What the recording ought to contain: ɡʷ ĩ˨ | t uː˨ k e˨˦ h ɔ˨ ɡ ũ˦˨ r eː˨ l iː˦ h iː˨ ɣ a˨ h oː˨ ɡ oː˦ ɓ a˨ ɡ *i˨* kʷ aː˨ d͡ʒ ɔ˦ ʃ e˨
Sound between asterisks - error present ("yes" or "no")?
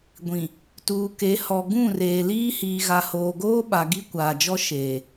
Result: yes